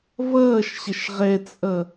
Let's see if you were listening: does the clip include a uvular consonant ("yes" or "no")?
yes